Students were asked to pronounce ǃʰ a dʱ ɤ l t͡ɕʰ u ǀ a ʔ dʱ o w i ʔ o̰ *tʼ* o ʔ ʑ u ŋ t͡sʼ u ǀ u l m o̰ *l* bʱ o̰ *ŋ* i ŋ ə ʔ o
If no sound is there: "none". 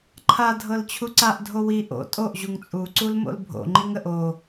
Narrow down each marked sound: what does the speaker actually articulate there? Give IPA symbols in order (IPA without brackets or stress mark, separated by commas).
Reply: tʼ, l, ŋ͡ǃ